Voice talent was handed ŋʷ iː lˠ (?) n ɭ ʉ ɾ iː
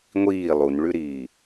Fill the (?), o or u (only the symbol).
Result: u